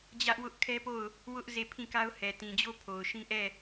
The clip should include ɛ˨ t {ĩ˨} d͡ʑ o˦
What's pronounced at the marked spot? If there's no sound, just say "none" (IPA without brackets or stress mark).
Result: ĩ˨